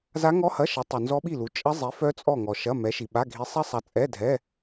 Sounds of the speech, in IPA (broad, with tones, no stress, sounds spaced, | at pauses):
z a˦˥ ŋ ɔ˦˥ h ɐ˧˥˧ ʃ ɐ˨˥ tˤ u˨ n z ɔ˦˥ ɓ i˥˨ l u˨˥ t͡ʃʼ ɐ˦˥ zˤ i˨˥ f œ˦˥ t͡sʼ ɔ˥˨ ŋ ɔ˨ ʃ ɐ˧˥˧ m ɛ˨˥ ʃ i˨ ɓ a˧˥˧ ɡʱ i˨˥ sˤ ɛ˦˥ sˤ a˨˥ t͡sʼ ɛ˧˥˧ dʱ ɛ˧˥˧